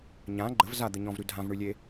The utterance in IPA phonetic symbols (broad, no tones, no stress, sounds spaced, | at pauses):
ɲ ã ɡ͡ǃ ə v z a d̪ ə ɲ ɔ̃ v ɾ ʉ dʱ ã v ɳ ʉ lʲ e